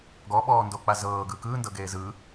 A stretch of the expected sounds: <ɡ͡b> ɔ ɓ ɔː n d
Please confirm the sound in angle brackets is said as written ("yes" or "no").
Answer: no